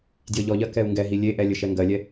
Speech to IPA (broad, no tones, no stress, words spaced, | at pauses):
djɘʎɔʎɜ kɛu̯ŋɡɛɦi lʲeʔɛ lʲɘʃɛŋɡɜlʲɛ